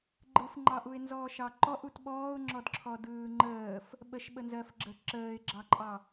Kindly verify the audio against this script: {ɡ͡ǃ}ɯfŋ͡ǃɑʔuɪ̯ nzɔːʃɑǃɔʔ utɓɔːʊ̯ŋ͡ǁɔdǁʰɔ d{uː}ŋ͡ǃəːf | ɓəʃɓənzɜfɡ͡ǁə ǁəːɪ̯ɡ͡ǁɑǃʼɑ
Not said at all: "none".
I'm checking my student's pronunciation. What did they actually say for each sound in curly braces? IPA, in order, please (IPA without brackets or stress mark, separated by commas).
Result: ɡ͡ǃ, ɯː